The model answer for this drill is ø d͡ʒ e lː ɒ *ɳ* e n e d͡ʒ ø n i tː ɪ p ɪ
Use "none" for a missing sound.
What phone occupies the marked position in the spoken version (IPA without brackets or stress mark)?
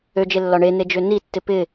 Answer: ɳ